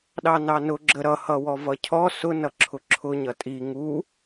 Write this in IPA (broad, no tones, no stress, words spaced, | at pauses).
ɗɑnɑnʊ ɡ͡ǁəɾʌ hʌwɔvʌcʰɔ sʊ nʌǁʰʊǁʰʊ ɲʌtʼi ŋu